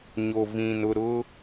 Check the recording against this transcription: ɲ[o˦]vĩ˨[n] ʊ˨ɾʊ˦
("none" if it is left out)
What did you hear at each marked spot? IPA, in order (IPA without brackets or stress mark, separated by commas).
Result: o˨, n